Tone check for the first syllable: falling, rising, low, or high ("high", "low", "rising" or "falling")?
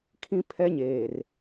high